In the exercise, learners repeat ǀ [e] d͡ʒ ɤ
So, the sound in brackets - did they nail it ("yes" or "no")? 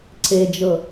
yes